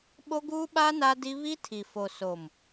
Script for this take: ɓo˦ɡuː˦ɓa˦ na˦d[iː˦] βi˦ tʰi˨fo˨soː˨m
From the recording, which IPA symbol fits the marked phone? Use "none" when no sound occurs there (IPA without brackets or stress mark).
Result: i˦